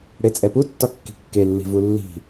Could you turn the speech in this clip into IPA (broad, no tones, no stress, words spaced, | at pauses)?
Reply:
ɽet͡sʼɛputːɒ kːi̤kːelːi̤ vulːi̤